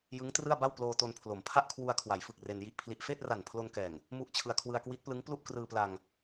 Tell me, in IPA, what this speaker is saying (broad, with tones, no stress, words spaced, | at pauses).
jɯ˦˥ŋtrɯ˥˩a̯ba˥˩wploː˧ to˧npʰlo˩˦m pʰa˥˩ʔkʰwu˧a̯kʰwa˩˦jfɯ˨˩k̚ re˧nji˥˩ʔpʰli˦˥ʔ feː˥˩t̚ra˨˩n pʰlo˧nkɛː˨˩ŋ | mu˥˩ʔt͡ɕʰɯ˧a̯ kʰwɯ˧a̯kwi˦˥t̚plɯ˦˥ŋ plu˥˩ʔkrɯː˧pla˧ŋ